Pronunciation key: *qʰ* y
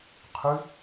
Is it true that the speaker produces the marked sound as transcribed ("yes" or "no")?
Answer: yes